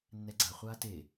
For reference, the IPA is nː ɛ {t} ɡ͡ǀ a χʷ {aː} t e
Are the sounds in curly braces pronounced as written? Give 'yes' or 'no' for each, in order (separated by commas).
no, yes